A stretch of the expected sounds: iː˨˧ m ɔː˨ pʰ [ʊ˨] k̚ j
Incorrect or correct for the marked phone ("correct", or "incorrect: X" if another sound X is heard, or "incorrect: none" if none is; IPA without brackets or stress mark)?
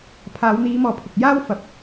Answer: correct